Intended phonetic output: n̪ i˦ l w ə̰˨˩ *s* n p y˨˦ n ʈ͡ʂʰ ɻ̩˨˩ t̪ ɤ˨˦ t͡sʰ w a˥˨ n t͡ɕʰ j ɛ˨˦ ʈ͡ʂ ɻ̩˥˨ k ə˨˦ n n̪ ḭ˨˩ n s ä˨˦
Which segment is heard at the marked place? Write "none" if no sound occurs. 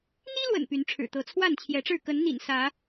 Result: none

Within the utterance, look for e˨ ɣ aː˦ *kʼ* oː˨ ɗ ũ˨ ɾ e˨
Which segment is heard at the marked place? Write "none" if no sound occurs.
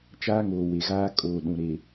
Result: kʼ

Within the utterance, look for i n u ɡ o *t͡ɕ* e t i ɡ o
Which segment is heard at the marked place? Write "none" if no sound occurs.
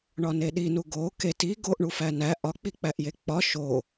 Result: k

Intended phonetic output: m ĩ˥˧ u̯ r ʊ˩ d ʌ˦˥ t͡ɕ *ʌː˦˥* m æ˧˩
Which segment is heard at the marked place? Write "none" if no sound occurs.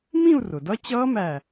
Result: ʌː˦˥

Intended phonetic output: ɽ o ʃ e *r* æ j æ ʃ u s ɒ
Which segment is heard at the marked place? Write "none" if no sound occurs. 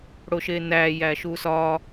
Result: n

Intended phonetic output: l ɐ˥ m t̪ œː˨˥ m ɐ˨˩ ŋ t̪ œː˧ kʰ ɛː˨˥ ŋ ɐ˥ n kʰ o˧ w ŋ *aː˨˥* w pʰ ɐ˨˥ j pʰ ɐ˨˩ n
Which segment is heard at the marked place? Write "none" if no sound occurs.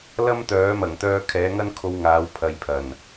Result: aː˨˥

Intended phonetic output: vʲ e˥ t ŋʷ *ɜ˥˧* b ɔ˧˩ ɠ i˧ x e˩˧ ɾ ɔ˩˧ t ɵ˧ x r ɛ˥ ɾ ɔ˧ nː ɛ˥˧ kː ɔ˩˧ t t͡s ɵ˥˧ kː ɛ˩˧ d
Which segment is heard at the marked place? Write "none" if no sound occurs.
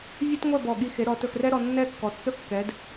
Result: ɛ˥˧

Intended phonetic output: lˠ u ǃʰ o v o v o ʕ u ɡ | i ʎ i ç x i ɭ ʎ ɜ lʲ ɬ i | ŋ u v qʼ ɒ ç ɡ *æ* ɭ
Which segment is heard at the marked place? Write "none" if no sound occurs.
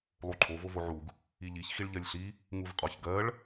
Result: ɜ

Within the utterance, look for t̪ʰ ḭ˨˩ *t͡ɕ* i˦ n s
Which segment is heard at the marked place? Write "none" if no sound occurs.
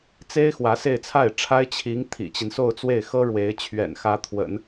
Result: t͡ɕ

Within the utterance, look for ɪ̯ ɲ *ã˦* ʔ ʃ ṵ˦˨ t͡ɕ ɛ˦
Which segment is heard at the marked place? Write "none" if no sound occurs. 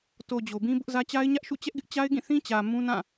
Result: ä˦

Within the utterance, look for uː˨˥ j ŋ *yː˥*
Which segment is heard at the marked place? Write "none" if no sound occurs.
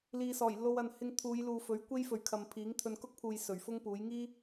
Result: iː˥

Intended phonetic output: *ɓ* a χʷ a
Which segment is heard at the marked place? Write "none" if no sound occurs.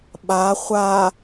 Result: ɓ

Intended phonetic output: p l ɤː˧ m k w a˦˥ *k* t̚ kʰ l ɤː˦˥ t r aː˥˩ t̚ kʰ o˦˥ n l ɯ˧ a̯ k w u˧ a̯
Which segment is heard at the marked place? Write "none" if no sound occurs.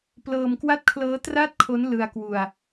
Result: none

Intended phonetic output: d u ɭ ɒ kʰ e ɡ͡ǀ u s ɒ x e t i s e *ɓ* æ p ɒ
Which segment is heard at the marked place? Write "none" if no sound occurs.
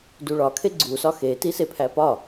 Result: pʰ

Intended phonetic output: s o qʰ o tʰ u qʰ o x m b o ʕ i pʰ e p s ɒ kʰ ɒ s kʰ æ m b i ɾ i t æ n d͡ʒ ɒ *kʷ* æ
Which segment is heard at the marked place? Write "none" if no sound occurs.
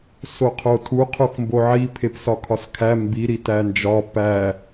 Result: p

